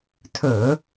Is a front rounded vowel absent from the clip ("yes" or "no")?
yes